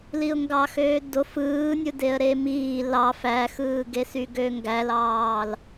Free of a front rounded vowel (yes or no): no